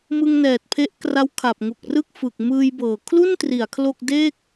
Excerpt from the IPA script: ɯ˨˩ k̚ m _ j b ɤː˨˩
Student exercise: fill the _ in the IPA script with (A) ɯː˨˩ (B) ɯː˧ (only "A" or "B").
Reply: B